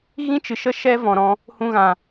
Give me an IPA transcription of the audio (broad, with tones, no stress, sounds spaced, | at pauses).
ɣ ĩ˦ t͡ʃ ɨ˨ ʃ ə˦ ʃ ɛ˦ v ɔ̃˨ ɾ ɔ̃˧ | h ũ˧ ɣ ã˨